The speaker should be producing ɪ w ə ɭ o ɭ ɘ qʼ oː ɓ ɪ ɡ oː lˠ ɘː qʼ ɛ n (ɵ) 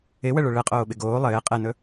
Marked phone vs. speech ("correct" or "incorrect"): correct